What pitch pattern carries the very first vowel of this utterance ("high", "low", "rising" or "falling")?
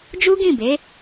high